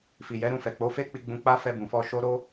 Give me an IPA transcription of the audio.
fi˨jɛ˨˦ɾũ˧ fɛ˨k͡po˨˦ fe˦k͡pi˧ ɡ͡bũ˧k͡pa˦ fɛ˧bũ˨fɔ˧ ʃo˦ ɾo˦

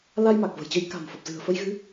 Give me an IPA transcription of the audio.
la˧jma˨˩k̚ və̤˨˩jt͡ɕə˧j ka̤˨˩mfə˨˩p̚ zɨ̤˨˩ə̯fə˧jɣɨ˨˦

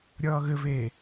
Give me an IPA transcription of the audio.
ɾʲʌːɣɘveː

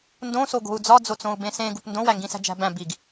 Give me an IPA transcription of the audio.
ndõso ɡo̤u̯d͡zɒd͡zo t͡sõu̯bẽsẽ ɡupndõwæ ŋɡĩsæ̤d͡ʒæ̤bæ̃ biɡ

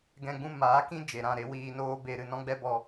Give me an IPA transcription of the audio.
ɡɛ̃˧ ɡ͡bũ˧ maː˨˦kĩ˦ d͡ʒe˨ɾã˦˨ɾe˦ wiː˧noː˦ be˧ ɾɨ˧nɔ̃˦ɡ͡bɛ˦bɔ˧

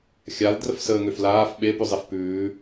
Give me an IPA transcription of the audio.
xʲaldrəf səːŋøflaːf ɓepʉzˤef pʉː

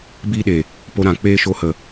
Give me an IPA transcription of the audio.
biː˦ɗe˨ | po˧ɾã˨ k͡peː˦ʃo˧hə˨

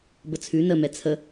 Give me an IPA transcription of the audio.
bət͡sʰʉ nə mɛt͡sʰə

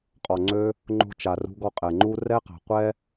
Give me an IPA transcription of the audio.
qʼɔ˨ŋ͡ǀø˧ | ŋ͡ǃo̤˧ t͡ʃa˨rṳ˧ɡɔ˧ qʼɛ˨ŋ͡ǃu˧ rɛ˧qa̤˨ qʷɛ˦

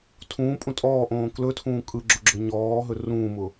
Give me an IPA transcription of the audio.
tʰũːpʼũ tʼɔːʔõː klɵtʰũː kʼɯɡ͡ǁʊɡ͡ǁɵ ɲɔːɦɵ rũːmʊ

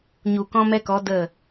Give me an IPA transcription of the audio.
ɲu˨ kɔ̃˧mɛ˧kɔ˨˦ də˦˨

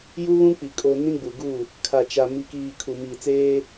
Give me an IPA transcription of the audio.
ju˦βũ˦k͡pi˨ kʼo˨ nĩ˦ɡ͡bu˨ɡu˦˨ | kʰa˨t͡ʃa˨ mi˨kiː˨ kʰu˨ miː˨t͡seː˦

